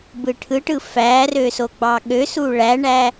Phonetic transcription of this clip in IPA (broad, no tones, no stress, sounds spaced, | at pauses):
b ɯ ʈʰ ɯ ʈ ɯ f æ r ø s o ɡ͡b ɑ ɠ ø s u ɭ æ ɳ æ